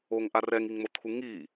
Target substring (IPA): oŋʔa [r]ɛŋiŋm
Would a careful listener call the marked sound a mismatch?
no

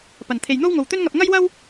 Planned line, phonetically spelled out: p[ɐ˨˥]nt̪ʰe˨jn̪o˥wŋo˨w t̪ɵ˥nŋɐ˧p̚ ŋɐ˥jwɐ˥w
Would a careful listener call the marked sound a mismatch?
yes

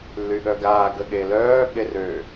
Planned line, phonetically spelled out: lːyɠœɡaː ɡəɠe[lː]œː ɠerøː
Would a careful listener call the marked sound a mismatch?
yes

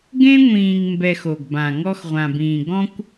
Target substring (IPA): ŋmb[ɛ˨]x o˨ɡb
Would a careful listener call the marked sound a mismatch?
no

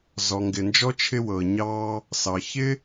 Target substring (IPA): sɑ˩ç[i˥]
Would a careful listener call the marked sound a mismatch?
yes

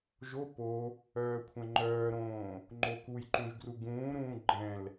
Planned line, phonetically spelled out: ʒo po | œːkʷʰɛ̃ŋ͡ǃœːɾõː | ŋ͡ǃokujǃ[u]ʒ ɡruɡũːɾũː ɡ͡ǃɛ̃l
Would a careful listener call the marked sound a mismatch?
yes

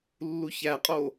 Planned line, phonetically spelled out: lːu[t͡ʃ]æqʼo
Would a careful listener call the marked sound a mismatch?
yes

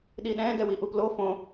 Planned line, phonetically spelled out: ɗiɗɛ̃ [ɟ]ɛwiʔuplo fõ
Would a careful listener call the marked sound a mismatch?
yes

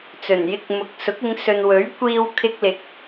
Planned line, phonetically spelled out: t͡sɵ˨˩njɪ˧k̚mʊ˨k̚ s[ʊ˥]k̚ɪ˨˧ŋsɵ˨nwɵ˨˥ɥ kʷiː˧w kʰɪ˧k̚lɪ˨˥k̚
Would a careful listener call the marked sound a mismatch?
yes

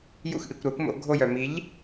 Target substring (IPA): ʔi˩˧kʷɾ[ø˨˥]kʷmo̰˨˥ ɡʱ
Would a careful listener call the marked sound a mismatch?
yes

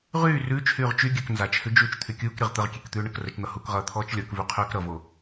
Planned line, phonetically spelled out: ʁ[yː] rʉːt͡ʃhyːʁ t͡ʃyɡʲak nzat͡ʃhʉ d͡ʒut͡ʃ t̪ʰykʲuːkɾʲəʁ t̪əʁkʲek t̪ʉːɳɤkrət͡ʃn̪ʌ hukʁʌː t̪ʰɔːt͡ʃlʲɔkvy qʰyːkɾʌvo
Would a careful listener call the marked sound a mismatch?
no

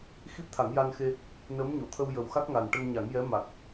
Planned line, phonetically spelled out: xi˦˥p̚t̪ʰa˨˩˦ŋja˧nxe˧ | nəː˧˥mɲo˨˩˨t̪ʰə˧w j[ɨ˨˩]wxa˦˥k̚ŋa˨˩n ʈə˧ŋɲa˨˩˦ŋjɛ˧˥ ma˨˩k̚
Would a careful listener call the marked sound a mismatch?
yes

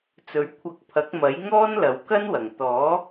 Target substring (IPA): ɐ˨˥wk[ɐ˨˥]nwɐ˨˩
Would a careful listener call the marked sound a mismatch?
yes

